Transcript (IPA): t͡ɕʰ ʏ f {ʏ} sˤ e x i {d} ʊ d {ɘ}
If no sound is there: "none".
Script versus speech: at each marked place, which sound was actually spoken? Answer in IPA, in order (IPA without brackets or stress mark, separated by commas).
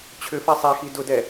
ɛ, d, ɛ